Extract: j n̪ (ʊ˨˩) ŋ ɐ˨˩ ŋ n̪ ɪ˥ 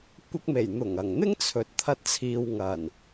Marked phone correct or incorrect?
correct